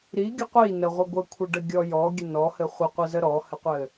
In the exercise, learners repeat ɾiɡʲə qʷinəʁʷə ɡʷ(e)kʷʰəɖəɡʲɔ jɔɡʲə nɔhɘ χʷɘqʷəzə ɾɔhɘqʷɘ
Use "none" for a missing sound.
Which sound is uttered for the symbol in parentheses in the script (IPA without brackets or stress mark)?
ɘ